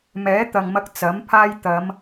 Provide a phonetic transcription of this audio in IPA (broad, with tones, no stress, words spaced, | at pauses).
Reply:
mɛː˨˥t̪ɐ˨ŋmɐ˧k̚ t͡sɐ˨˥mpʰaː˥j t̪ɐ˨˧m